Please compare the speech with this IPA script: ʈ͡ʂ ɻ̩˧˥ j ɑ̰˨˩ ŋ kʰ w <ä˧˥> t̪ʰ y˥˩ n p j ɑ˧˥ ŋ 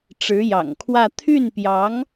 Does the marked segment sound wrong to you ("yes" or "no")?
yes